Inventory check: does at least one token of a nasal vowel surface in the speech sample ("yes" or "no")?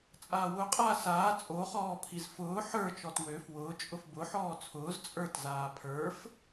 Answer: no